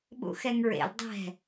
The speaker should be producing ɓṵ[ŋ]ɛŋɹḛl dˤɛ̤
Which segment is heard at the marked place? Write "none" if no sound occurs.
x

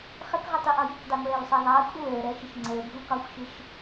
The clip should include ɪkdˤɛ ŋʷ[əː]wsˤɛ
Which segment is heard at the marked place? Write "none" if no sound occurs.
ɛː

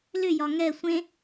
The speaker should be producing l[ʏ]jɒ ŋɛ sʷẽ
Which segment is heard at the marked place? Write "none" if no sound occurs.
ʏ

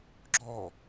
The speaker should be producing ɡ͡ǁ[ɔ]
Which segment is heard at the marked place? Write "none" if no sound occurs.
ɔ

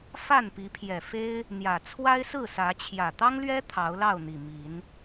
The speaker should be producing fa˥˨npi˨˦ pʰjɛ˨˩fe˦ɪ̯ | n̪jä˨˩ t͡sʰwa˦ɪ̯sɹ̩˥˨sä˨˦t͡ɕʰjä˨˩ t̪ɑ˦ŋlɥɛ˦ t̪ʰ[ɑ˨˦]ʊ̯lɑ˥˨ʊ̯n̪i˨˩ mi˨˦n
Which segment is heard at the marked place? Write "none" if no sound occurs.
ɑ˨˦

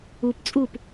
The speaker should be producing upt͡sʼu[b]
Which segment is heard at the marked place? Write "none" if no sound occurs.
p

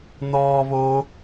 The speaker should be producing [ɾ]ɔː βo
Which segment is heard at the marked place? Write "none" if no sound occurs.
n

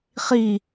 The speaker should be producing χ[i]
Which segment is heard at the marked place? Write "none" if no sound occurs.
i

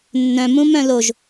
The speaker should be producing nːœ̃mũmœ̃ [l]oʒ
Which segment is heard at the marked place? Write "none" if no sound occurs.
l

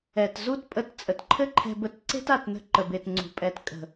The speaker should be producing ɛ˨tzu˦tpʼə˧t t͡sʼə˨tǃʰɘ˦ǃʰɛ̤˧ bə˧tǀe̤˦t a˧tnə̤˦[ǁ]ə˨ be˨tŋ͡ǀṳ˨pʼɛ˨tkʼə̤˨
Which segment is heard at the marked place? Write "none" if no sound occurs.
ǃ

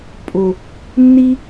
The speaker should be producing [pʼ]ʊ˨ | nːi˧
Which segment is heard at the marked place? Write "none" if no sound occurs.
pʼ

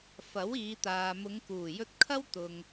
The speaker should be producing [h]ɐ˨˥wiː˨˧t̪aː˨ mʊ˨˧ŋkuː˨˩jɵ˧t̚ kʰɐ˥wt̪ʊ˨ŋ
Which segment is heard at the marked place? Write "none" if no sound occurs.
f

